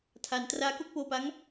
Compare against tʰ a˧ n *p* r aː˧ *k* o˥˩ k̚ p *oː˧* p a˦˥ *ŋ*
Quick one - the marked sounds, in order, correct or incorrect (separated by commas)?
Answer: incorrect, correct, correct, correct